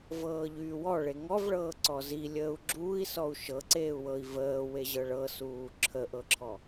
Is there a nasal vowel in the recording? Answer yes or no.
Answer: no